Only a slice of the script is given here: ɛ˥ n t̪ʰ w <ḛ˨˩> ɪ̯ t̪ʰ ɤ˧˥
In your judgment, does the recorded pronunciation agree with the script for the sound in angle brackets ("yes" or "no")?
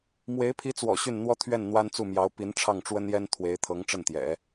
no